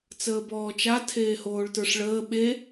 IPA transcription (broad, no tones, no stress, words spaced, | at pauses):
t͡səːbɔːt͡ʃa tʰeːhoːɭtə˞ʂɭəː ɓe